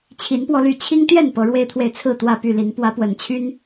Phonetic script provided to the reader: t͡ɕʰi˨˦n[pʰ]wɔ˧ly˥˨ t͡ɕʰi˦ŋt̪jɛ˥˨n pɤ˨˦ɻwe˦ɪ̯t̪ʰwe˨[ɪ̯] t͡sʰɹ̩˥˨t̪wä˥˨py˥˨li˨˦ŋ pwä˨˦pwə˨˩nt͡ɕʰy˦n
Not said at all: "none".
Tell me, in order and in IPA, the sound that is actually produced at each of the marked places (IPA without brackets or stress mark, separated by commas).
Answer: p, ɪ̯